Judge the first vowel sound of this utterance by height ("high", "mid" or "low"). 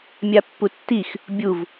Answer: low